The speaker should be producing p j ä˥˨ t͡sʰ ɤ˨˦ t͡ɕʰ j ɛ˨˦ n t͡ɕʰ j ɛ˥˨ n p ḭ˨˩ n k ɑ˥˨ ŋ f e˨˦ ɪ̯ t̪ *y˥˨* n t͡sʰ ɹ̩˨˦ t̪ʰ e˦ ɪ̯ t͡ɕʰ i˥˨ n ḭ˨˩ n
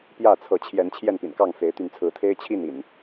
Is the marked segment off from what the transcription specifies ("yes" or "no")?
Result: yes